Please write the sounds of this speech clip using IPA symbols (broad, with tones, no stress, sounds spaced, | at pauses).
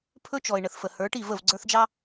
pʰ ɵ˦ t͡ʃ ɔ˨ ɪ̯ ɳ ə˨ θ f ə˨ h ə˞˨˦ ʈ i˦˨ v ə˦˨ v ɡ͡ǀ ə˞˦ θ d͡ʒ ɑ˦